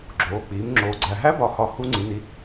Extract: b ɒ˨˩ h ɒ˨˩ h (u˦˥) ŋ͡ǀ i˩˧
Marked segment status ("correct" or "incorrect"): correct